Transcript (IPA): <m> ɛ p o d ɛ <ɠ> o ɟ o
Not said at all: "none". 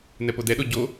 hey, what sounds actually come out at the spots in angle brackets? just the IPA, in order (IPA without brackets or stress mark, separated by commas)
n, ɗ